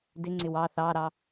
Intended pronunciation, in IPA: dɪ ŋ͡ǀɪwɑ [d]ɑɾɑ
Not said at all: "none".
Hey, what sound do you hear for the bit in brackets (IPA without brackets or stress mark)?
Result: θ